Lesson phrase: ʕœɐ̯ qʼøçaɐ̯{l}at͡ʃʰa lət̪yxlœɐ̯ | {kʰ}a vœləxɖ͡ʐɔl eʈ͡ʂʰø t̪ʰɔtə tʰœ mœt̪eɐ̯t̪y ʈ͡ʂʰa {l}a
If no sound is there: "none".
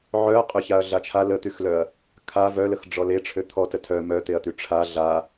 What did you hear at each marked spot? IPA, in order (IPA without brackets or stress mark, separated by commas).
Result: ɮ, kʰ, ɮ